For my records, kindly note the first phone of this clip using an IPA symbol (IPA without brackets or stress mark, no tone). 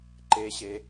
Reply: ǃ